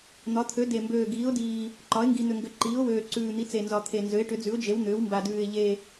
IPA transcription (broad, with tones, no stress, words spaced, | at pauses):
n̪ɒ˩˥t̪ʰø˩˥ de˨˩mbøː˨˩ ɡiː˩˥ʊ̯diː˨˩ | ǃɒ˩˥ɪ̯ŋɡi˨˩n̪ʏ˨˩ŋɡʏ˨˩ ǃiː˩˥ʊ̯wøː˨˩ǀʉː˨˩ n̪i˩˥t͡se˨˩nzɒ˨˩ t̪ʰe˨˩nzø˩˥ɪ̯ʈʏ˩˥d͡zʉ˩˥ʊ̯ d͡ʒe˩˥wn̪ʏː˩˥wmba˨˩dʉː˨˩ɪ̯ ʎe˨˩